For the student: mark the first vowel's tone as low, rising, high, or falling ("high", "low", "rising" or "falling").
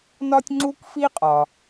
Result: high